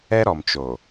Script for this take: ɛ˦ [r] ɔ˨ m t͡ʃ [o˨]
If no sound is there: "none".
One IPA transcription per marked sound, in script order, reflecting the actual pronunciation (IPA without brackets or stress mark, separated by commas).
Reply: ɾ, o˨